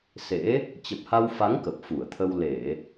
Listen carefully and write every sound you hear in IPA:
s ḛ˧˥ | t͡ɕ ə˨˩ p̚ h a˧ w f a˨˦ ŋ k ə˨˩ p̚ f u˧˩ ə̯ t̪ʰ ə˧ w l e˧˩˨

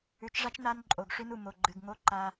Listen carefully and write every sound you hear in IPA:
ʉ˨ t͡ʃ ʐ a˦ t͡ʃ n a˦ n ǃʼ o˨ ɡ ʂ ʉ˦ n u˨ m o˨ ɡ͡ǃ ɨ˨ ɡ ŋ o˦ ǃ a˦

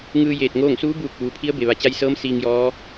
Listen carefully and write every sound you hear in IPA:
ŋ ɯː˧ j eː˧˩ t̚ ŋ oː˥˨ ŋ s uː˧˥ b uː˧˩ k̚ ʋ uː˩ pʰ i˧˥ ə̯ b e˩ ʋ a˩˧ t͡ɕ a˧ j s ɤː˧˥ m s iː˧ ŋ j ɔː˧˥

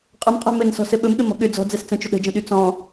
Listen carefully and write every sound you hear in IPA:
qʼ ə m qʼ ɛ̤ m ɘ n s ɔ̤ s ɘ ɓ ɵ m ɠ ɘ m ɔ̤ ɠ ʏ d͡z ɔ̤ d͡z ɛ s t͡s ə̃ t͡ʃ ʏ ɗ ə̤ d͡ʒ ə̃ ɗ y t͡s ɔ̃

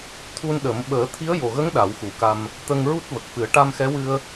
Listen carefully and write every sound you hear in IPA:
t̪ʰ u˧ n ɗ ə˨˩˦ m ɓ əː˨˩˦ t̪ʰ i˧˥ ə̯ j o˨˩ ɣ ə˧˥ ŋ ɗ a˨˩˦ w x u˨˩˦ k a˧ m | t̪ ə˧ ŋ ɹ u˦˥ t̚ v ə˨˩ k̚ f ɨ˨˩˦ ə̯ ʈ a˧ m x ɛ˧˥ w ɨ˧ ə̯

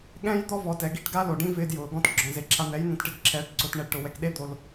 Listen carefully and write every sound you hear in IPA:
ɠ ɛ̃˦ j d̪ ɔ˦ v ɔ˨ t ɛ˨ ɡ i˦ ʈ ɡ a˦ l o˨ ɖ ĩ˦ v ɪː˧ d j ʊː˨ ɡ ɔ̃˦ t ɡ͡ǁ ɔ̃˨ z e˨ ǁʰ a˧ n̪ ɛ˨˦ j n̪ ɛ̃˧ t ʈ ɪ˧ d ǁʰ ɛː˨˦ ʈ ǀ ʊː˧ t ɳ ɛ˦ ɖ ʈ ʊ˨ w ɛ˨ k ɗ e˦ d̪ o˧ l

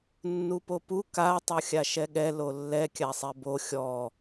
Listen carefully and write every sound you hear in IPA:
nː u p o p u k a tˤ o xʲ a ʃ ɛ ɠ ɛ l o lː ɛ kʲ a sˤ ɛ b o xʲ ɔ

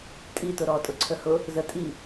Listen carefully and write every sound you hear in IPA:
tʼ i t ʊ ɾ ɔ tʼ ʊ ǀʰ ə h ʊ | z ə tʼ i

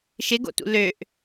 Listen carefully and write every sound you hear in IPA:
ʃ ɪ ɡ o̰ t ṵ l ø ʔ

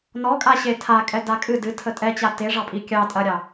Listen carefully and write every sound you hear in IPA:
n ɔ kʼ a ɕ e tʰ a kʼ ɛ d a kʼ ɨ d ɨ tʰ ə tʼ ɛ t͡ɕ a t e ʐ ɑ pʼ i kʲ ɑ tʼ ɐ ɾʲ ɑ

